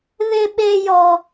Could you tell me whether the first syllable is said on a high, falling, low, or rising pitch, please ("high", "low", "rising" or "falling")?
high